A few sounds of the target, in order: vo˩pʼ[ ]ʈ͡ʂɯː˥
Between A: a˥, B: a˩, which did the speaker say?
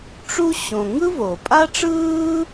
A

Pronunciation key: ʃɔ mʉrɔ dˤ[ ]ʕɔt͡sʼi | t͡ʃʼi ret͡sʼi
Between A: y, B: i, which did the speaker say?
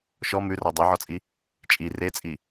A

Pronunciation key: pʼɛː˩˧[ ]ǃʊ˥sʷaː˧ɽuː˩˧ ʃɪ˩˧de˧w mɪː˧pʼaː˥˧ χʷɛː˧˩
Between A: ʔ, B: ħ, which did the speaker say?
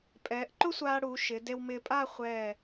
A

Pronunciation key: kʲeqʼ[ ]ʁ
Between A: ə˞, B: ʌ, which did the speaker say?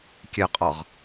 B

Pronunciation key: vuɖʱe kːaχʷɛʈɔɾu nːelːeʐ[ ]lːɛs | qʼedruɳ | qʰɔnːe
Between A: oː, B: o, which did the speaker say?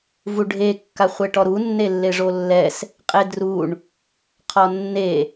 B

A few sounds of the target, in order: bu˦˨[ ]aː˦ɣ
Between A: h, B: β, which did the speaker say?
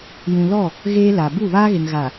B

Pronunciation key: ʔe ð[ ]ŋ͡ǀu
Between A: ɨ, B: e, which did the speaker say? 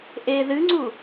A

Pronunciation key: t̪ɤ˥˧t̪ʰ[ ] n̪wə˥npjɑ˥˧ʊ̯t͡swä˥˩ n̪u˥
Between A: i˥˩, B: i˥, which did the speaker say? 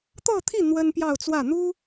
A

